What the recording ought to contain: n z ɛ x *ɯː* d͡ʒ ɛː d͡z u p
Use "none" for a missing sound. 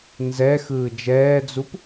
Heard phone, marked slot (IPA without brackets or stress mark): ɯː